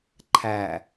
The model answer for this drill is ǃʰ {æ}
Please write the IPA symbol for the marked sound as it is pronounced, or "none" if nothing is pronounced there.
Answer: æ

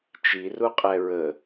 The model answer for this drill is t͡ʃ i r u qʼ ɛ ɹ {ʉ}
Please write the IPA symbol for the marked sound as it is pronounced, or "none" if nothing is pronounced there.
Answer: ə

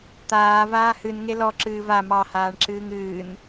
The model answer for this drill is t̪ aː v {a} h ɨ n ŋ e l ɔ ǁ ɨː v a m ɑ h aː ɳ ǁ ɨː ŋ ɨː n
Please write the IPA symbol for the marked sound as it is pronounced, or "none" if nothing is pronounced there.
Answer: aː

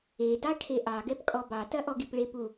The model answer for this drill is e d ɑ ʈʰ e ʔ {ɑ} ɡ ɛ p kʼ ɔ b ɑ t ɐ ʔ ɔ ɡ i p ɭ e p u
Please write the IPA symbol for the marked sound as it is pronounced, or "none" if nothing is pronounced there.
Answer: ɑ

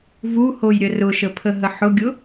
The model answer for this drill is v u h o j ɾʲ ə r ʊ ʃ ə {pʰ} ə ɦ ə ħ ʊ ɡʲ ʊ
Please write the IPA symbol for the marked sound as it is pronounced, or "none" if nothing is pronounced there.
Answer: pʰ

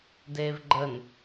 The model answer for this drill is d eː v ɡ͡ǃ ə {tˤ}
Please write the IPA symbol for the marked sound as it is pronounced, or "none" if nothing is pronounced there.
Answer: n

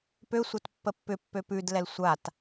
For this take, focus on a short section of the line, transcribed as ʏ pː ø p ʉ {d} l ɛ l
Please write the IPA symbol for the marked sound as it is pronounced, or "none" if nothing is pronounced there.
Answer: d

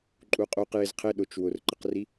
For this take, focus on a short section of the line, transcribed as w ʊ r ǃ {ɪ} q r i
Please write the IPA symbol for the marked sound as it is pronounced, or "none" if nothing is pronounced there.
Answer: ɪ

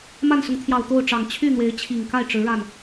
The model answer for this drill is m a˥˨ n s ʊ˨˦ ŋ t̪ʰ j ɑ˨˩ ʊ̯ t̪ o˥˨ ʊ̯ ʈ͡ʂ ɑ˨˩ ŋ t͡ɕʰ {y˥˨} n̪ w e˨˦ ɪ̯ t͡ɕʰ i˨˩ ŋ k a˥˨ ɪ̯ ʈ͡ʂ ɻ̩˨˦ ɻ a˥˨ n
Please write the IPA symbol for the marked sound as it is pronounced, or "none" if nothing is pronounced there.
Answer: y˥˨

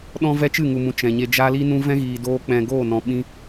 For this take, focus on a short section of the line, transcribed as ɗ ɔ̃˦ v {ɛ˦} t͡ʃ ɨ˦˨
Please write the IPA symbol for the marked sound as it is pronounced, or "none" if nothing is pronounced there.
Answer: ɛ˦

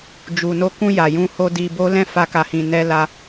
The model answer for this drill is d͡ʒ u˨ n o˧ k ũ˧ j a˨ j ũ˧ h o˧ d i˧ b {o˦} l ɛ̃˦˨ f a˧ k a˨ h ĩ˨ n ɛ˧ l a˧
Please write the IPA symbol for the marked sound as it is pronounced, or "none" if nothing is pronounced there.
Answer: o˦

